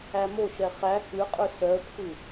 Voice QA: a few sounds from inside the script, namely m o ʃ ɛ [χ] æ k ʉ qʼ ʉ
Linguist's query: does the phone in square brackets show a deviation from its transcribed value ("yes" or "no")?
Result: no